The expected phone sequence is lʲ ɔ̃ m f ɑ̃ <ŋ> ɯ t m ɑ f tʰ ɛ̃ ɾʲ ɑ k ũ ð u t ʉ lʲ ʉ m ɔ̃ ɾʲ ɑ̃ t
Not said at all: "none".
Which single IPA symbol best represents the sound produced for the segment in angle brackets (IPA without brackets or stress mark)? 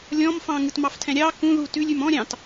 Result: ŋ